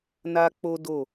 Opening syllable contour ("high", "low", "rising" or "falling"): high